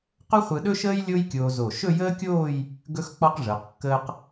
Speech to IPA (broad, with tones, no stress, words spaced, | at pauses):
qɵ˥χʷɯ˧ɗɵ˥ʃəː˥j lʲo˥jkʲoː˧zo˧˩ ʃɵ˥˧jəː˥kʲoː˥˧j | ɡɵ˥x k͡pɔ˥qʐəː˩˧qkːəː˥q